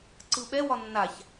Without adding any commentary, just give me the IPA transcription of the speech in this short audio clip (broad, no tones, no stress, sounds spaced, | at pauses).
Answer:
ǀ ɯ ɓ ɛ w ɒ nː a ç